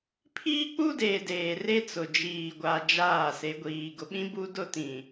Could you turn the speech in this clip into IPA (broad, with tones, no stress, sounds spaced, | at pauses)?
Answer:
pʰ iː˦ k͡p u˦ d eː˨ d eː˨ r e˦ t͡s ʊ˨ d͡ʒ iː˨ ɡʷ a˨ d͡ʒ aː˦˨ s e˨˦ ɡʷ iː˨ ɡ ʊ˨ ɓ ĩ˦ b u˦ d ʊ˦ t ĩ˨